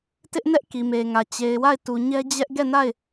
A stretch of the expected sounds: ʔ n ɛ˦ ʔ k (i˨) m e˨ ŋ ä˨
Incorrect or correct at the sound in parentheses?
correct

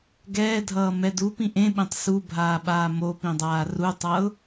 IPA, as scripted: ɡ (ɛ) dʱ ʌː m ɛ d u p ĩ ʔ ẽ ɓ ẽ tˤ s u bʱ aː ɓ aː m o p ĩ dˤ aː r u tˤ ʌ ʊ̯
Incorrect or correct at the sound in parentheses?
incorrect: ɛː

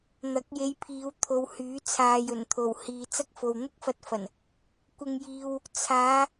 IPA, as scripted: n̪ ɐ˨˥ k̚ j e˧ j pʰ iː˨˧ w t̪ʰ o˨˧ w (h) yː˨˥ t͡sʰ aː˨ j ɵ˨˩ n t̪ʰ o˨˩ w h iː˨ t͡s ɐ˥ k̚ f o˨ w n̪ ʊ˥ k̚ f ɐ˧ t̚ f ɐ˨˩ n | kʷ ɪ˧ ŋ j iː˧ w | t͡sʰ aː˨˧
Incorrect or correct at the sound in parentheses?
correct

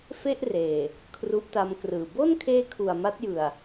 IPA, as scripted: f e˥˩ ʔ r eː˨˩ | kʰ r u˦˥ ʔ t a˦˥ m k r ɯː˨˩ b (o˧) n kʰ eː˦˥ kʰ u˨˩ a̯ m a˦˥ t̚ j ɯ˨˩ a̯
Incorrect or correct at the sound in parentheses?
incorrect: o˥˩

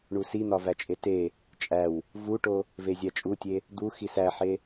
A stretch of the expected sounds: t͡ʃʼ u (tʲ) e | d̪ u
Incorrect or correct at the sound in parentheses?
correct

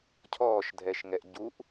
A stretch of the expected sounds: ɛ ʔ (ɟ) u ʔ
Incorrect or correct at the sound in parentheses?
correct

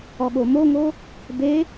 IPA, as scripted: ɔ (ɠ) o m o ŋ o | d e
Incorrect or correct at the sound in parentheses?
correct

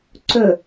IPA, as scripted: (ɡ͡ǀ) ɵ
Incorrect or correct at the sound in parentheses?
incorrect: ǀ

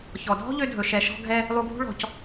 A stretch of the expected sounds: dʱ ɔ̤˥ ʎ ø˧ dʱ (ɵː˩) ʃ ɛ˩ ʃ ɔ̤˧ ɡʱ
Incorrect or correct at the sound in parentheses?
incorrect: ɵ˩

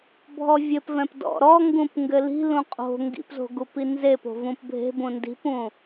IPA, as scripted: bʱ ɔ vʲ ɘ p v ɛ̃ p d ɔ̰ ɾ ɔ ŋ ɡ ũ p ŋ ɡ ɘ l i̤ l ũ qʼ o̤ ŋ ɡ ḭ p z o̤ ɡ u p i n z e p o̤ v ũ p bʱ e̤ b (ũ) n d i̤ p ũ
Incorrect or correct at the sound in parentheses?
correct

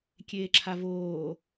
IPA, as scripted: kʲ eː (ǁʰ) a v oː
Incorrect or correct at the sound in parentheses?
correct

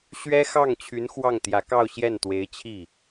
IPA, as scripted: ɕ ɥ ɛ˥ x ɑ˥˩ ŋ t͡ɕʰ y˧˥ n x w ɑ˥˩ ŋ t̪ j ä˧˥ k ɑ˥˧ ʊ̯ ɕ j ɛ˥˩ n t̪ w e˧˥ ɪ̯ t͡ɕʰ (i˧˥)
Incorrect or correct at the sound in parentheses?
incorrect: i˥˩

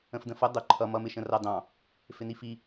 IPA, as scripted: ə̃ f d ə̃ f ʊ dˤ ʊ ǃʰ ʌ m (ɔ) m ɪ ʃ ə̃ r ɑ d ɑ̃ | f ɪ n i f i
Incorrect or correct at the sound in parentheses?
incorrect: ʌ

